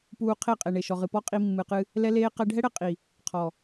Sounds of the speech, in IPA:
puː˧qʰe˦˨qʼe˨ ɳe˨ʃɔ˨ʁɨ˨pɔ˦ qʼi˧mːɨ˨qɨ˧ | lɛ˦leː˦ qɛ˧ɖʱɛ˦ɽɛ˧ qʼi˨ | qʰɔ˨

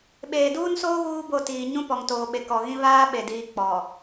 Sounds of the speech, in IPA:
ɓeː˨duː˦nsoː˦ ɣuː˦ bo˦˨tiː˨ ɲũ˦pɔ˨ŋtoː˨ɓe˨ kɔ˨ɣĩ˦ βaː˦ɓe˨diː˨ k͡pɔ˨

